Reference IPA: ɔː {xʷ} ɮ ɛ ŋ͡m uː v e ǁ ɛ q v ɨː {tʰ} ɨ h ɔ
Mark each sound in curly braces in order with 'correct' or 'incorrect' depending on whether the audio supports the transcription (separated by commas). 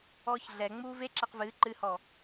incorrect, incorrect